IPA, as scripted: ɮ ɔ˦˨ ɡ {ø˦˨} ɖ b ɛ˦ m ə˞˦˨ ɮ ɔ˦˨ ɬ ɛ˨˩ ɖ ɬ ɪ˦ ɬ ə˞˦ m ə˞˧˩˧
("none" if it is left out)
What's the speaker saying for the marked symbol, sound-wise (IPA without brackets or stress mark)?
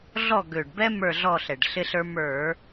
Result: ø˨˩